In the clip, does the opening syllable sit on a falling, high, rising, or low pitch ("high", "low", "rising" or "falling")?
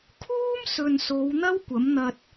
high